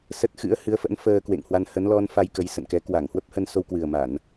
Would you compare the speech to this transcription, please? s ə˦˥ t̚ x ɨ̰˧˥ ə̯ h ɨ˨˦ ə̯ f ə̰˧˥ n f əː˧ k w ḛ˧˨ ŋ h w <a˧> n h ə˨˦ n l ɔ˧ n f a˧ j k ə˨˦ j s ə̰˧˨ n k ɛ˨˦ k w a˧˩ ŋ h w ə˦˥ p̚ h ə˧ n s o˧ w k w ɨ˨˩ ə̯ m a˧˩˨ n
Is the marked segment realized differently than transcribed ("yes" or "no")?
no